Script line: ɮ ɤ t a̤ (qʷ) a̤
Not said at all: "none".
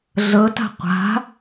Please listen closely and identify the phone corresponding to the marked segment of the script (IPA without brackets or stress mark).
qʷ